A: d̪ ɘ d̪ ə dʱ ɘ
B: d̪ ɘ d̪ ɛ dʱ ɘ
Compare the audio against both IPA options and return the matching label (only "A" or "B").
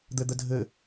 A